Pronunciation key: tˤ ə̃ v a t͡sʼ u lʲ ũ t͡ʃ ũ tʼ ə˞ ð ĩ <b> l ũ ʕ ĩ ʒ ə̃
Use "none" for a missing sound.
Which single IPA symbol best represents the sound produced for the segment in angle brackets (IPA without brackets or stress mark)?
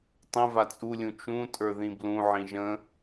b